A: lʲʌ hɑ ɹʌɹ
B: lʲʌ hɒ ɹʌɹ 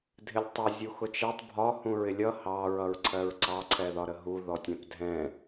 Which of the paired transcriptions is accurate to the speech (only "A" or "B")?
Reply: A